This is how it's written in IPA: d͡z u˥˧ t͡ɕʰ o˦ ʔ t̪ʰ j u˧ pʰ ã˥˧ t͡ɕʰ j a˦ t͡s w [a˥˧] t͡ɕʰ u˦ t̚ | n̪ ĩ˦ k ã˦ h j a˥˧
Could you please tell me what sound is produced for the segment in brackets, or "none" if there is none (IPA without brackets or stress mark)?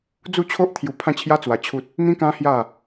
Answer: a˧